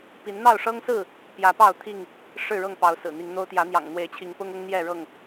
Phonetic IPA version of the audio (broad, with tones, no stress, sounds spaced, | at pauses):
p i˨˦ n n̪ ɑ˥˨ ʊ̯ ʂ ɤ˦ ŋ s ɹ̩˥˨ | p j ä˨˦ p ɑ˥˨ ʊ̯ t̪ʰ i˥˨ ŋ | ʂ ɻ̩˥˨ ɻ ɤ˥˨ ŋ p ɑ˨˦ ʊ̯ s ɹ̩˨˩ n̪ i˨˦ ŋ n̪ o˦ ʊ̯ t̪ j ä˨˦ n̪ j ɑ̰˨˩ ŋ n̪ w e˨˦ ɪ̯ t͡ɕʰ i˨˦ ŋ p ʊ˦ ŋ ʊ˦ ŋ n̪ j ɛ˥˨ ɻ ɤ˥˨ ŋ